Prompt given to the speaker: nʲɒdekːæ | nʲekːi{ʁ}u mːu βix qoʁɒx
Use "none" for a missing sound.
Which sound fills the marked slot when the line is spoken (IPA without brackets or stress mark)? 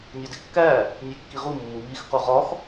ʁ